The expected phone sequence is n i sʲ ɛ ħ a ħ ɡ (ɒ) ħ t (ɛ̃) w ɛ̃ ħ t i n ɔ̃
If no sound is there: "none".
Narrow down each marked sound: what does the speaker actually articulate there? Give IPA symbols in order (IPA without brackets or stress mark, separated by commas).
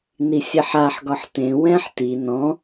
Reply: ɒ, ẽ